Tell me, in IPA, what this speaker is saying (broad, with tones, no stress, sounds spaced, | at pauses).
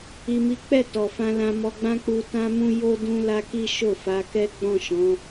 i˨ m i˨˦ k͡p ɛ˦˨ t ɔ˨ f ã˧ l ã˧ m ɔ˧ ɡ͡b ã˦ k͡p u˧ t ã˦ m ũ˦ j o˦ d ũ˦ l a˦ k i˦ ʃ o˦˨ f a˨˦ k ɛ˦ ɡ͡b ɔ̃˦˨ ʃ ɔ̃˨˦